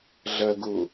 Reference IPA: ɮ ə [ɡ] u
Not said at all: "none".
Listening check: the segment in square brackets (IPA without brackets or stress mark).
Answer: ɡ